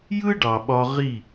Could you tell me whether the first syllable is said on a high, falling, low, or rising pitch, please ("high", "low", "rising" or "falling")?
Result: high